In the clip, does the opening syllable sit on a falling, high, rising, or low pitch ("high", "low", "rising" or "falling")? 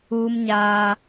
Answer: high